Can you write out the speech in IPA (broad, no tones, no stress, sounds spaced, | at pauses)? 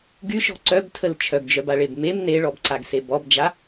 ɡ y ʃ ɔ̤ ǀ œ b tʰ ə l t͡ʃʰ œ ɡ d͡ʒ œ b a ɭ e b m e m n e ɭ ɔ b ǀ a ɡ s e b ɔ b d͡ʒ a